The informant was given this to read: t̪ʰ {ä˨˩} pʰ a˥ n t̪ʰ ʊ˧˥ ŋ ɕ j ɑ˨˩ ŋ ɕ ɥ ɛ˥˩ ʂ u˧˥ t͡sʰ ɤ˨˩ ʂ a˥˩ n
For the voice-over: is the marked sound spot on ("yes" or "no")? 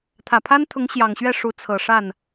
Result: yes